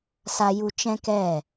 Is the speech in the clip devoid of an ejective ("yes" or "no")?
yes